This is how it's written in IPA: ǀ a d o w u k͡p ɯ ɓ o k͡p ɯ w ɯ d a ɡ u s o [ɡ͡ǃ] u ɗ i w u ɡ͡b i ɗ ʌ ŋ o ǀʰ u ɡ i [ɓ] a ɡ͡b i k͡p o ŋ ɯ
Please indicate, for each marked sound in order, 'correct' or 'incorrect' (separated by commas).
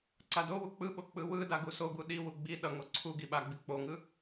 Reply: incorrect, correct